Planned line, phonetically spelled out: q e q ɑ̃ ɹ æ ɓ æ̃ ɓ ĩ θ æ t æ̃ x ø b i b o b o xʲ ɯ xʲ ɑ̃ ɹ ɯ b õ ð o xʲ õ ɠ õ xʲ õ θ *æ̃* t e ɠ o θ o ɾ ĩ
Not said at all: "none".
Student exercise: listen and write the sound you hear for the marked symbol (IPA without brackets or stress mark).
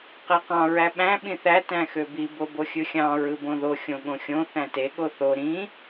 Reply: æ̃